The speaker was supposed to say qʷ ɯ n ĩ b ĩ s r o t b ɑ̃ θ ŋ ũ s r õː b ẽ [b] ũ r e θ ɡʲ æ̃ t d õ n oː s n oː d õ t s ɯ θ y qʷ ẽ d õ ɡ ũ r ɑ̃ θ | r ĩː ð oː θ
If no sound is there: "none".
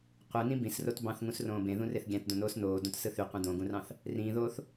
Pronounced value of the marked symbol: ð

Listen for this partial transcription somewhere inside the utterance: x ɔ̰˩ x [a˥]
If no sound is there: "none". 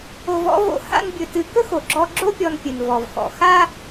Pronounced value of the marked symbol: a˥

